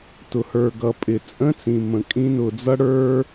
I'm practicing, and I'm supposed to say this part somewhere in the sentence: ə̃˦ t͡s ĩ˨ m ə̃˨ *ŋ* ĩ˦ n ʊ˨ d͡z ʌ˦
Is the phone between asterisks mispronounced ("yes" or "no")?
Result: yes